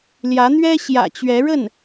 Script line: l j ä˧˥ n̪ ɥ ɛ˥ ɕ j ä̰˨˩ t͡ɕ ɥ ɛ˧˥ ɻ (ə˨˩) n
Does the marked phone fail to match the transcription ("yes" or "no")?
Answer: yes